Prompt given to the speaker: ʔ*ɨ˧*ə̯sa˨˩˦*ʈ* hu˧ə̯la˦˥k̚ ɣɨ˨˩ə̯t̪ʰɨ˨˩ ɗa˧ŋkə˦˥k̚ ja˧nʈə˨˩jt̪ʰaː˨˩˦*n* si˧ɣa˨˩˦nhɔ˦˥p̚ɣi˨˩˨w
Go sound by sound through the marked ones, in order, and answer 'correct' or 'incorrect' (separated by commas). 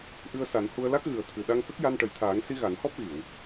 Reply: correct, incorrect, incorrect